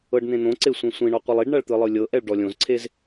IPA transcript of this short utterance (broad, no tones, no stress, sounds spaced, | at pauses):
ɤ ɖ n̪ ẽ n̪ õ ǀ e sʷ ẽ sʷ ĩ ɳ ɔ qʷ ɯ lˠ i ɖ ɳ a ɭ t̪ ɯ lˠ ɯ lʲ ɤ ʔ ɛ ɭ ɖ ɔ lʲ õ z ǀʰ e z